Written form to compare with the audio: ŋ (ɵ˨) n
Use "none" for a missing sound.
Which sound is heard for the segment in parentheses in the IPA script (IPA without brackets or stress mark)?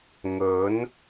ɵ˨˥